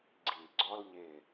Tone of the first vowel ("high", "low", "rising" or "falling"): low